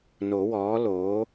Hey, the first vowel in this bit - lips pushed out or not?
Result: yes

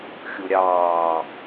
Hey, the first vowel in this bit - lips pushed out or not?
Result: yes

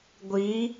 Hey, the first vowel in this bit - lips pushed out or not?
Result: no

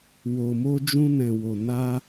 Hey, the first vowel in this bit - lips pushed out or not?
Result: yes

